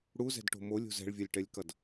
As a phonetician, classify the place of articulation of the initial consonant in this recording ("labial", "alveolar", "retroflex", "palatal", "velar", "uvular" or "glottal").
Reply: retroflex